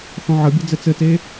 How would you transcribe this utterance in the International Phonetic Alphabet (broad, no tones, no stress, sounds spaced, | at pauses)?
θ ɔ̃ ʕ ə bʲ ɘ d͡z ɘ t͡s ɘ t e